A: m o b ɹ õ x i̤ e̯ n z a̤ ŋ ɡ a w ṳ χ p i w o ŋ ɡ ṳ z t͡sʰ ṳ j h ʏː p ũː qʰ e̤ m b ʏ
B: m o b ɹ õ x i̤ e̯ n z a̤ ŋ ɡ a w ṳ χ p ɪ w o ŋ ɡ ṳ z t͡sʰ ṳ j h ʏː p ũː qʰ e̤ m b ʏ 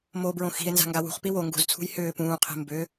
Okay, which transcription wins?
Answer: A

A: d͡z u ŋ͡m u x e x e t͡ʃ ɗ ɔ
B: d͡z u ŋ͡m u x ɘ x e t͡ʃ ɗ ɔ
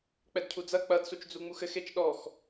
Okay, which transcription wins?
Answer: B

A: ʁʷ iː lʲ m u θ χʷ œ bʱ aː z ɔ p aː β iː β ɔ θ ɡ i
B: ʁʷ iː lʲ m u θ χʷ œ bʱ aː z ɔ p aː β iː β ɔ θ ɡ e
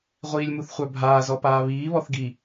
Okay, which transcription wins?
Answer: A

